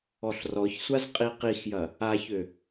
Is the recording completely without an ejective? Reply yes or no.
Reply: no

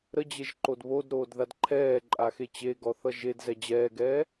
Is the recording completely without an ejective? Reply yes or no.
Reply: no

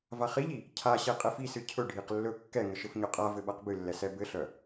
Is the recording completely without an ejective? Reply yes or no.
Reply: no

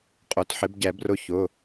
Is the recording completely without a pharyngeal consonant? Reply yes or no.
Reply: no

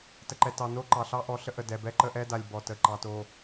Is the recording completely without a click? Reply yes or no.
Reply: no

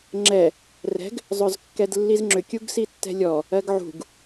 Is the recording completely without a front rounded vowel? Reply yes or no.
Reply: no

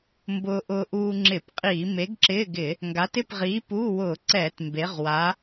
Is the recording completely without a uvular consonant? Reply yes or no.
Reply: no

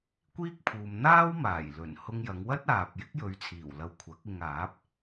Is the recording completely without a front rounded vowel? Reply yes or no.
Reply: yes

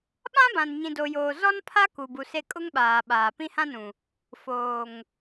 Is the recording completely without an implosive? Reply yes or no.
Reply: no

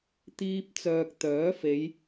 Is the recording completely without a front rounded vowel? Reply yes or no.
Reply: no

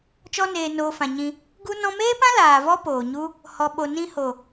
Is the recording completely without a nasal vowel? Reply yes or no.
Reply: no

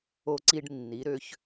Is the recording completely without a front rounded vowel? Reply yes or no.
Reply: no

